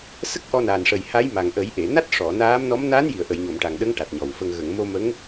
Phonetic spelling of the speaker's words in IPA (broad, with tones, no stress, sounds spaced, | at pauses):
s ə˦˥ k̚ ʔ ɔ˧ n a˨˩ n ʂ ə˨˩ j h a˧˥ j m a˨˩ ŋ ʔ ə˨˩˦ j ʔ e˨˩˨ n a˦˥ t̚ ʂ ɔ˨˩˨ n aː˧˥ m n ɔ˧˥ m n aː˧˥ n j i˨˩˨ ə̯ ʔ ə˨˩˨ j ɲ o˨˩˨ m ʈ a˨˩ ŋ ɗ ə˧˥ ŋ ʈ a˨˩ t̚ ɲ ɔ˨˩ w f ə˧ ŋ ɣ ə˨˩˨ ŋ m o˧ m ə˧˥ ŋ